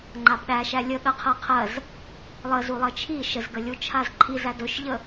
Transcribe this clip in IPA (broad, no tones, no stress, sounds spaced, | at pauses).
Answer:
ŋ͡ǃ a b ɗ æ ʃ æ lʲ ə ɠ ɜ qʰ ɜ qʰ ɜ z | lˠ ə z u lˠ ɜ t͡ʃʰ i ʃ ə z ɡ ə lʲ u t͡ʃʰ a z ǃʰ i z æ d ɵ ʃ ʎ ə